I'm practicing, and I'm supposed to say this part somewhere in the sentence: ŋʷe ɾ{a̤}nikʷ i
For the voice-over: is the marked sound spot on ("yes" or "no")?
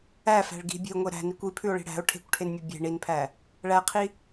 no